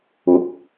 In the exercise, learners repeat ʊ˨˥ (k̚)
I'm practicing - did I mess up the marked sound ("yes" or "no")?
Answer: no